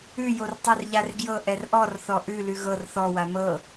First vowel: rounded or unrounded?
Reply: rounded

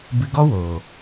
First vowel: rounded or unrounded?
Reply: unrounded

